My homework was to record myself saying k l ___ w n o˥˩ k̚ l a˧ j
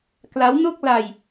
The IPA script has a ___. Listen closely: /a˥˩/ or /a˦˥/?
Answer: a˦˥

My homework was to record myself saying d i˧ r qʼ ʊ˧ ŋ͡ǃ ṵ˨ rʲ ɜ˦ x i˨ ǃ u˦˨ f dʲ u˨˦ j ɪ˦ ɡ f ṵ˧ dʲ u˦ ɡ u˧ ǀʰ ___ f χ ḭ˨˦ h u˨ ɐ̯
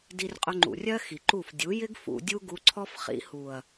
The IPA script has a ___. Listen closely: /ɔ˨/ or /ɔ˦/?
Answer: ɔ˦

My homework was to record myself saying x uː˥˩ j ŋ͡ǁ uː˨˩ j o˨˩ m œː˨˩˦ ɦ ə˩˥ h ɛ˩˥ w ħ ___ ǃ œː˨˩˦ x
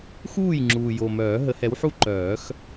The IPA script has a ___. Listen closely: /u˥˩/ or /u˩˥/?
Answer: u˥˩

